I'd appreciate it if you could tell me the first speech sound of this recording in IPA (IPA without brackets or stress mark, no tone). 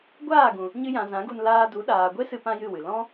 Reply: ɡʷ